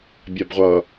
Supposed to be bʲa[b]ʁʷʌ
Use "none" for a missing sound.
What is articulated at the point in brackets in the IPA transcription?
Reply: b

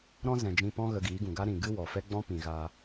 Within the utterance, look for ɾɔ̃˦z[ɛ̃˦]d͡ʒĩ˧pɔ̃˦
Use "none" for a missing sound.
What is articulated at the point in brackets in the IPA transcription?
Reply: ɛ̃˨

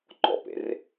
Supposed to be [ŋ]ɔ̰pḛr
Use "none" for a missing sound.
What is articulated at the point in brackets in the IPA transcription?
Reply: ŋ͡ǃ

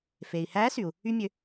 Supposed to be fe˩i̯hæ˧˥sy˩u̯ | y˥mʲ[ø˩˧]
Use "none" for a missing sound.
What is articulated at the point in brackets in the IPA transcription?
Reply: ø˧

